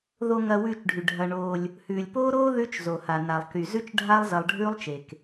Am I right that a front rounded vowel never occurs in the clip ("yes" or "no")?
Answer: no